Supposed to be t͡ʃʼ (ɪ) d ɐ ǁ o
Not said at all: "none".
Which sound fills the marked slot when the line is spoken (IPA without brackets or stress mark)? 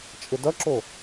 ɪ